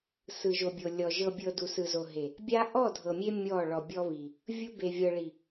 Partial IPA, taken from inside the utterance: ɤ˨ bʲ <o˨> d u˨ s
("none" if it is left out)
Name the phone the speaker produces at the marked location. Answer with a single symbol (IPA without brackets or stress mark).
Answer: ɤ˨